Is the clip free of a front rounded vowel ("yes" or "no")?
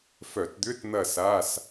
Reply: no